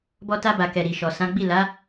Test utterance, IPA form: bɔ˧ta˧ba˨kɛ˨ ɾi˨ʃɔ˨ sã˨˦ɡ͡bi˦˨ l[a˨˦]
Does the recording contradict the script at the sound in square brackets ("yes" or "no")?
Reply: no